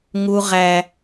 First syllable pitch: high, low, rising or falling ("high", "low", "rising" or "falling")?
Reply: high